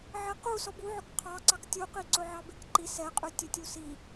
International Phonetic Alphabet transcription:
ʕɛqu sɔbuʕɵk qʰɑǀɑk tʲuqiǀɵ ʕɑbekǃi sɛqʼʉ tʲɵtʲusi

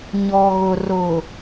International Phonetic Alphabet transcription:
ɲɔ˨ɣʊ˨ rʊ˨

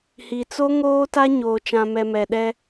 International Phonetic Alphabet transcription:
hi˨t͡so˦ ŋoː˦ta˦ ɲoː˨t͡ʃã˨mɛ˨mɛ˨ ɗɛ˦

